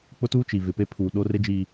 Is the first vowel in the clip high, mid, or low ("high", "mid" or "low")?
high